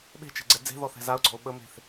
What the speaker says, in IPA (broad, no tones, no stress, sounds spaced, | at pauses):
ɓ e̤ t͡ʃ ɛ̤ ɡ͡ǀ ɛ d͡z e̤ ð ɔ θ ɛ̤ z a ʊ̯ ɡ͡ǀ ɔ̤ ʊ̯ ɓ ə m e̤ θ